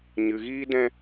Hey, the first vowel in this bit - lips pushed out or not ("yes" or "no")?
no